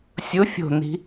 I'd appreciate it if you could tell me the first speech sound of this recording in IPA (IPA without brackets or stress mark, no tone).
sʲ